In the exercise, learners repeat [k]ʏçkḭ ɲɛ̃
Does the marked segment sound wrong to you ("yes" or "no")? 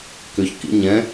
no